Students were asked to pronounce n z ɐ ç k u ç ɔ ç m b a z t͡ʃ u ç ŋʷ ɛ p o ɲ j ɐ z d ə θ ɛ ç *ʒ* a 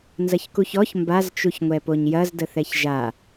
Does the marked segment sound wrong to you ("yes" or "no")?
no